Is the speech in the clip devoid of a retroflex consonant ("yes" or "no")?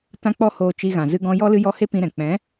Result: yes